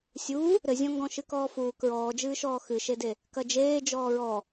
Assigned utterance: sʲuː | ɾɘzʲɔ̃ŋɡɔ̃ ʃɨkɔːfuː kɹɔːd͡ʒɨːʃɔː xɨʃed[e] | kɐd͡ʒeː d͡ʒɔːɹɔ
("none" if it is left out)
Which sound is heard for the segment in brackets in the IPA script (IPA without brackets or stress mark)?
e